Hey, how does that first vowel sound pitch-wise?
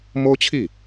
high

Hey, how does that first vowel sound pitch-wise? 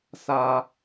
low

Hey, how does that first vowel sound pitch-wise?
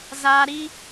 high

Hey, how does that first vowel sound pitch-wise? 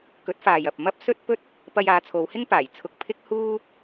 rising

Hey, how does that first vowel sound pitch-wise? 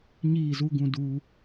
falling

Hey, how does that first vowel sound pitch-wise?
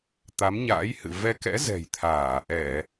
rising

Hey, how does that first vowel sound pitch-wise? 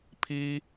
high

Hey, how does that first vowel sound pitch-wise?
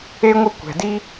high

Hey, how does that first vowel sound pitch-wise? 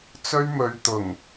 high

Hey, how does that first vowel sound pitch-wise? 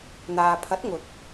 low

